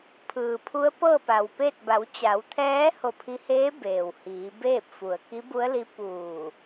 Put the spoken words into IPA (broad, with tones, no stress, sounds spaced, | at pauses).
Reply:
pʰ ɯː˩ pʰ u˧˥ ə̯ p ɤː˥˨ p a˩ w p e˥˨ t̚ b a˩˧ w t͡ɕ a˩˧ w t̪ʰ ɛː˧˥ h o˧˩ pʰ i˧ h eː˧˥ b eː˩ w h iː˩˧ b eː˥˨ p̚ f u˩ ə̯ k i˧˥ b u˧˥ ə̯ l i˧˥ p uː˧˩